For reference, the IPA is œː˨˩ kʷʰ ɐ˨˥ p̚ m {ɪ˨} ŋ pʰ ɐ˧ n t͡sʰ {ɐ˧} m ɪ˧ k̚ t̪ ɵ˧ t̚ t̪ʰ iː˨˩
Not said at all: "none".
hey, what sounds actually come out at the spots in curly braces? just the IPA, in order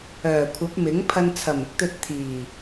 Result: ɪ˨˥, ɐ˨˩

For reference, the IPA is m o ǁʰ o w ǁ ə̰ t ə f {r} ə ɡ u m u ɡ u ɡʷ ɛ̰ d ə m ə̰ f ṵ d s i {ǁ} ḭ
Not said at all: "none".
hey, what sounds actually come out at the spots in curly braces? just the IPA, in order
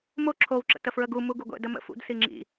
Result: ɹ, ŋ͡ǁ

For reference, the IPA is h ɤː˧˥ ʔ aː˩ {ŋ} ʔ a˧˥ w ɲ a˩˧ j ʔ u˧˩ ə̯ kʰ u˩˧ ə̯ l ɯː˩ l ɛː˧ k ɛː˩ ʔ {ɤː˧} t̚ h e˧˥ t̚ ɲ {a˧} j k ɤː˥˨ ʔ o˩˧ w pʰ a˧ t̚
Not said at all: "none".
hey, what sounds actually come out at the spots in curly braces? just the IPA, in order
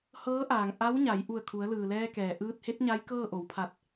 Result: ŋ, ɯː˧, a˧˥

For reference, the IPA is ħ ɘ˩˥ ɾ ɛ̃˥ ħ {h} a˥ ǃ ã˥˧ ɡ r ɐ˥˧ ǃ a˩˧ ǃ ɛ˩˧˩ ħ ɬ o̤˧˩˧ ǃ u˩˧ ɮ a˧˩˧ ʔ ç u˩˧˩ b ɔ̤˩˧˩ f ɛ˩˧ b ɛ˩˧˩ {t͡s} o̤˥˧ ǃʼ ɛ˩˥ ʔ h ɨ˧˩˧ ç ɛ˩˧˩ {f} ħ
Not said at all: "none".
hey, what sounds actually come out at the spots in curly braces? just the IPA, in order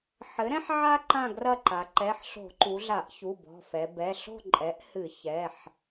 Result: ʕ, ɬ, none

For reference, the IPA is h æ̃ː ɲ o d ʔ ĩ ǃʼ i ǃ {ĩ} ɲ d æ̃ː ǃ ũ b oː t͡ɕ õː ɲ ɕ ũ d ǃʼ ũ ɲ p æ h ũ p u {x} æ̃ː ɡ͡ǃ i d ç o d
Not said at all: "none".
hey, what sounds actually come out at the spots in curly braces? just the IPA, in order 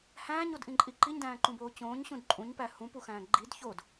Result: i, x

